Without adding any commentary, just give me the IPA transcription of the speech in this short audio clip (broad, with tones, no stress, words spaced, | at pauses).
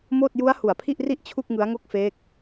moː˥˩t̚ ju˦˥a̯ hu˨˩a̯pʰi˥˩ʔri˥˩ʔ t͡ɕʰu˥˩k̚ŋɯ˦˥a̯ŋo˥˩k̚feː˦˥k̚